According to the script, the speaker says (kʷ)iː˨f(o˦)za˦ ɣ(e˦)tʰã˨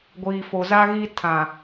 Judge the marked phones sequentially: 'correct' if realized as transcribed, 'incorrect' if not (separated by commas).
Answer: incorrect, incorrect, incorrect